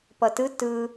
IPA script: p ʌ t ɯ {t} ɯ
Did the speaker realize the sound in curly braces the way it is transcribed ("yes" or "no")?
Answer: yes